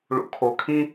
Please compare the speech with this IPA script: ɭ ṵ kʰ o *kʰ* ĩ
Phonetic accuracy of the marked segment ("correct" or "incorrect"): correct